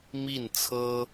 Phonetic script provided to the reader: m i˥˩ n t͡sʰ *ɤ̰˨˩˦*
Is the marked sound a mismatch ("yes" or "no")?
yes